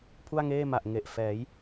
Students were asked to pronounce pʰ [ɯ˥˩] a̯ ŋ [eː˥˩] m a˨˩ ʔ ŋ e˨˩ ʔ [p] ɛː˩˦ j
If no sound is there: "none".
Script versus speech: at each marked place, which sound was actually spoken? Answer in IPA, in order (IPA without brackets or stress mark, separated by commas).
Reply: u˥˩, eː˥˩, f